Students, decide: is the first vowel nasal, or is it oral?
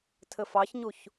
oral